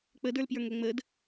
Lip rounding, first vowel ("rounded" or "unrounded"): unrounded